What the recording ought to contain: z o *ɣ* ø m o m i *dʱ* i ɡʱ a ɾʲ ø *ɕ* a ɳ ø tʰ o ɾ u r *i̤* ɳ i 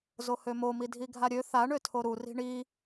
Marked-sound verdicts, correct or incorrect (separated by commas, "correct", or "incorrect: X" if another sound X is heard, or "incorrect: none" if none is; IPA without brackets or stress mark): incorrect: h, correct, incorrect: θ, correct